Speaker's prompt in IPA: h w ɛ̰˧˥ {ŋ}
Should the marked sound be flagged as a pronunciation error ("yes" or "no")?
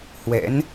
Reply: yes